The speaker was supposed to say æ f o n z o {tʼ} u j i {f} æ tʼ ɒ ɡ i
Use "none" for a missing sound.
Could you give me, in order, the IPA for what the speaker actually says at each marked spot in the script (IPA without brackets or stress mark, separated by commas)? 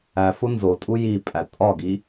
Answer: tʼ, pʼ